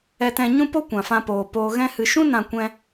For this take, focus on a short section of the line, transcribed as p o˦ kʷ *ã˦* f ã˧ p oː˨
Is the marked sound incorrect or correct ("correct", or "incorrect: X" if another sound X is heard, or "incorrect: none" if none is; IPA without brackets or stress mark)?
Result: incorrect: ã˨